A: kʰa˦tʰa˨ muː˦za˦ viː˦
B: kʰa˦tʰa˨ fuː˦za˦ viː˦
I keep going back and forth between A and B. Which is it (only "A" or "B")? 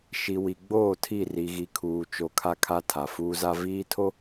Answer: B